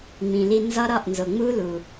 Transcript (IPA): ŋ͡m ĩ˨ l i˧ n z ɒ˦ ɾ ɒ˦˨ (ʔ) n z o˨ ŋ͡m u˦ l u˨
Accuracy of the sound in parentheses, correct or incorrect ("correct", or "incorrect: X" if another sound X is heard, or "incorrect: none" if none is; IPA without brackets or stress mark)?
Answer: correct